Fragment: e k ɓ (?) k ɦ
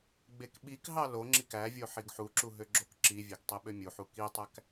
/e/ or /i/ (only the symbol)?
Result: i